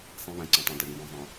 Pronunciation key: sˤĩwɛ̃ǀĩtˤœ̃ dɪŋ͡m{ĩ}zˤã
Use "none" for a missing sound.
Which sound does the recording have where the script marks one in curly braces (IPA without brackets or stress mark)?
ĩ